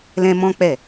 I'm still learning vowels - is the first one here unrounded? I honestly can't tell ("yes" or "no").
yes